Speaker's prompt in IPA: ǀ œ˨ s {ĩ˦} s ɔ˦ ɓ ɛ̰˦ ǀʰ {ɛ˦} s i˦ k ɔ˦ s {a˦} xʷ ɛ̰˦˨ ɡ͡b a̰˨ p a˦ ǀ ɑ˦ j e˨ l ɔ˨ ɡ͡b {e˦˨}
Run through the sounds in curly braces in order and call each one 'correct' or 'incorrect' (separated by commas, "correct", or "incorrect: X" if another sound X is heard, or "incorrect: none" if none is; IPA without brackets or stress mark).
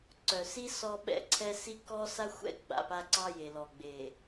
incorrect: i˦, correct, correct, incorrect: e˨